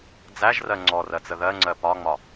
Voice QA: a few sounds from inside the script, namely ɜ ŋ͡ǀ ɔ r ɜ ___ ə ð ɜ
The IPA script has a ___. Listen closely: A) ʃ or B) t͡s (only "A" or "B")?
B